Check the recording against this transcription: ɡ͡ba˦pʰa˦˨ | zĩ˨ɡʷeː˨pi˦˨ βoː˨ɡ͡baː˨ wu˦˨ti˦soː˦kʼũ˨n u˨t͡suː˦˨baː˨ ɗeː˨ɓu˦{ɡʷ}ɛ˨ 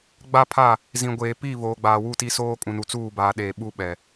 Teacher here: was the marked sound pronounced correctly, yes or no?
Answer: no